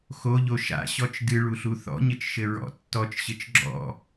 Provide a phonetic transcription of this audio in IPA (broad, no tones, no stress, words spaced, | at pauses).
xoʎo ʃa̰ɕɔt͡ʃ dɨɭuɬu θɔ̰ɲɘt͡ʃʃɘ ɹɔ̰ tːɔt͡ʃɕɘt͡ʃ ɡ͡ǁɔ̰